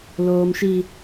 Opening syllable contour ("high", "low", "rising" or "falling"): high